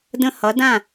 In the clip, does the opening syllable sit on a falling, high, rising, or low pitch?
falling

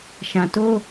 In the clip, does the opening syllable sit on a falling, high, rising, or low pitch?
low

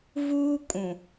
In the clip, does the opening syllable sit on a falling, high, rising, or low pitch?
high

